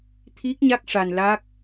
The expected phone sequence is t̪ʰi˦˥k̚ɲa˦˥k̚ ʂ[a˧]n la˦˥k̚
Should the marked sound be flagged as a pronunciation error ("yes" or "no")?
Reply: no